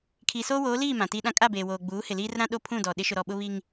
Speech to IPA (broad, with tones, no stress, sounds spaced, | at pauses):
kʰ iː˨ s oː˦ w oː˨˦ l iː˦˨ m ã˨ t iː˦ ɗ ã˦ kʼ a˦˨ b eː˨ w oː˨ ɡ͡b uː˨˦ h ɪ˨ l iː˦ r ɾ ã˦ ɗ o˦ pʰ ũ˦˨ d ɔ˨ ɗ ɪ˦ ʃ ʊ˨ ɾ ɔ˨ ɓ ʊ˦ β i˦ ŋ